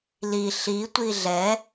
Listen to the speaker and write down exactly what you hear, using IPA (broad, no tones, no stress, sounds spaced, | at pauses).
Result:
l i ɬ i tʷ i ɮ ɛ